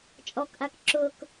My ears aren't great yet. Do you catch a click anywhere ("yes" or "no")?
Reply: yes